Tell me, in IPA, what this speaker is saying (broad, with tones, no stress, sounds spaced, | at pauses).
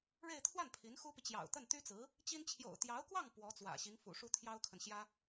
ɻ e˥˧ ɪ̯ t̪ʰ w a˥˩ n pʰ i˧˥ n x u˥ p i˨ t͡ɕ j ɑ̰˨˩ ʊ̯ t̪ ə˥˩ n t̪ y˥ t͡s ɹ̩˧˥ | t͡ɕ i˥ n t͡ɕʰ j o̰˨˩ ʊ̯ t̪ j ɑ˧˥ ʊ̯ k w ɑ˥˩ ŋ p w ɔ˧˥ t͡s w ä̰˨˩ ɕ i˧˥ ŋ f ṵ˨˩ ʂ u˥ t̪ʰ j ɑ˥ ʊ̯ kʰ ə˨ n ɕ j ä˥